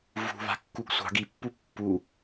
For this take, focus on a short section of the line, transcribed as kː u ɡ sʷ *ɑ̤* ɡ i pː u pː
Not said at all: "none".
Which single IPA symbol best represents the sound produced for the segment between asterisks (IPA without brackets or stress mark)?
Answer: ɑ̤